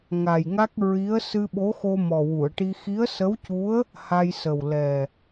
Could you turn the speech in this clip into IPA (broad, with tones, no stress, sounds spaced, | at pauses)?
ŋ a˨˩ j ŋ a˦˥ k̚ ɹ i˧˥ ə̯ s ɨ˧ ɓ o˧˥ x o˧ m ɔ˨˩ w u˨˩˨ ə̯ ʈ i˧ x i˧˥ ə̯ s ə˧˥ w c u˧˥ ə̯ | h a˧ j s ə˨˩ w l ɛ˨˩